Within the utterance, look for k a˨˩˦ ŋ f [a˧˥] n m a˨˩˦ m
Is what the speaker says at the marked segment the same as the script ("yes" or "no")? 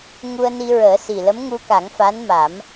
yes